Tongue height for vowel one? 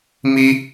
high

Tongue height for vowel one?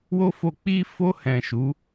mid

